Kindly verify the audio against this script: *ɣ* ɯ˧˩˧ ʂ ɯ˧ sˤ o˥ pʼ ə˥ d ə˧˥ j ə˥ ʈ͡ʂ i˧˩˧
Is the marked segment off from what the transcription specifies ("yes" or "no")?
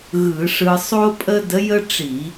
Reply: no